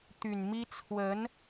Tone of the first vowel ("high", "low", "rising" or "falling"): low